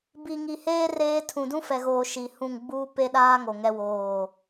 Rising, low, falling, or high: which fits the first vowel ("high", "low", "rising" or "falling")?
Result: low